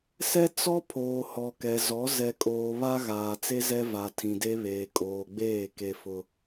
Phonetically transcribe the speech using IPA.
s ɛ˦ t͡s ɔ˦ pʰ oː˨ h ɔ˨ k ɛ˨ z ɔ˨˦ z ɛ˨ kʼ oː˨ β a˦ ɣ aː˨ t͡s e˦ z ɛ˦ v a˨ tʰ ĩ˨ d e˦ β eː˨ kʼ oː˨ ɡ͡b eː˦˨ k e˦ f ʊ˦

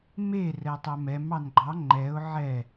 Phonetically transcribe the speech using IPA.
m e r ɛ tˤ ɛ m ɛ m ɑ n ɡ͡ǃ ɑ ŋ͡ǃ ɛ ʊ̯ ʕ ɛ

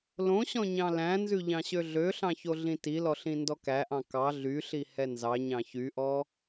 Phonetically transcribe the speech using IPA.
l õ ɕ ɔ̃ ɲ ɑ̃ l æ̃ n z ʉ ʎ ɑ̃ ɕ ø ɮ ø ɬ ɑ̃ ç o ɮ ĩ t i l ɔ ɬ ĩ n d ɔ k æ ʔ ɑ̃ k ɑ ɮ y ɬ i h ɛ n z ɑ ɲ ɑ̃ ç y ʔ ɔ

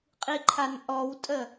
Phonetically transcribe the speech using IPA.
qʼ i ǃʰ a n ʔ ɔ w tʼ ə

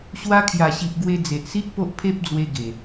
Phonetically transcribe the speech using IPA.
ɕ w a˧ kʰ j a˨˩ ɕ i˨ ʔ ɡ w e˧ d͡z e˨ ʔ s i˦ ʔ p o˦ ʔ pʰ e˦ p̚ d͡z w e˧ ɡ e˨˩

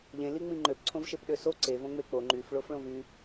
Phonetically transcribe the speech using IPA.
ʎ ẽ l i ŋ͡m ĩ ŋ͡ǃ ø p ǀʰ õ v ʃ e p ɗ ø s o ǀ e v õ ŋ͡m e k͡p o ŋ͡ǃ y f ɭ o f ɭ õ v y

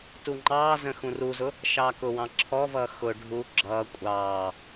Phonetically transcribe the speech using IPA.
t u ŋ͡ǃ ɑː z ə̃ x ũ r u z ʊ | ʃ ɑː k ʊ w ɑ̃ ǁʰ ɔ v ʌː x ʊ ɖʱ u ɡ͡ǁ ʌː kʷʼ ɑː

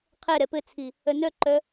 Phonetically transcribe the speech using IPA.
qʰ ɛ ɾ ɛ p ɘ t͡sʰ i | œ n œ ǃ œ

